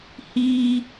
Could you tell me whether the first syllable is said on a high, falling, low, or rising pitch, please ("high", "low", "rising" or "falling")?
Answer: high